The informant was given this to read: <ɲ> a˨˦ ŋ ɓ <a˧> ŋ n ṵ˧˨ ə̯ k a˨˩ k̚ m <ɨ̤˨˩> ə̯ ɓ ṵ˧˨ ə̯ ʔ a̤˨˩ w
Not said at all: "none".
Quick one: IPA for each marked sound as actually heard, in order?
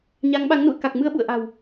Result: ɲ, a˨˦, ɨ˧

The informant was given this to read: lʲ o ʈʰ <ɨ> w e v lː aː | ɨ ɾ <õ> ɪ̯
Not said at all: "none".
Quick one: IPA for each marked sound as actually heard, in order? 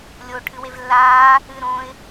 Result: ɨ, õ

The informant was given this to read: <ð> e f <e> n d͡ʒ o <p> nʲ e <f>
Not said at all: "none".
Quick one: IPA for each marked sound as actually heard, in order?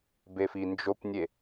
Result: b, i, p, none

